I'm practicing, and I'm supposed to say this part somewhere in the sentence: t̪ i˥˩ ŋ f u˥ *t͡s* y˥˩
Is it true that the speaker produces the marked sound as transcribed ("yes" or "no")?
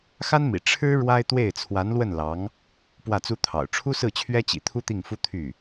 no